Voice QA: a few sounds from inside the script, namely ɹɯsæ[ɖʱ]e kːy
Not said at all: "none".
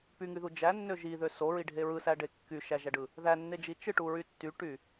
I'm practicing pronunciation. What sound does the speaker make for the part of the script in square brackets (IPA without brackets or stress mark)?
ɖ